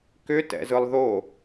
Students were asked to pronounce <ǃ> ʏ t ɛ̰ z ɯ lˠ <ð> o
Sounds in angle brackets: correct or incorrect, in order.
incorrect: k, correct

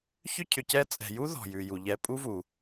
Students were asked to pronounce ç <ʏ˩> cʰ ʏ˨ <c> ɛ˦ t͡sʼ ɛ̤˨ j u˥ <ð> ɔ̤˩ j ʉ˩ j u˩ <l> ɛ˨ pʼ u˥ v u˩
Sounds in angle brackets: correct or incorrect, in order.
incorrect: ʏ˥, correct, correct, incorrect: ʎ

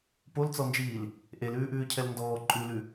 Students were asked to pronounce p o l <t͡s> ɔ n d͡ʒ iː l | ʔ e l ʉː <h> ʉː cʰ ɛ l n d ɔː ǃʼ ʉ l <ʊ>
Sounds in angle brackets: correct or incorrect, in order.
correct, incorrect: ʔ, incorrect: ʉ

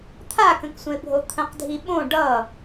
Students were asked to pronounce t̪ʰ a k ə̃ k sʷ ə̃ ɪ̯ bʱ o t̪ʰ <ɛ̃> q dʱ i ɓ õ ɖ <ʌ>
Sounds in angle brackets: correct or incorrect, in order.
incorrect: ə̃, correct

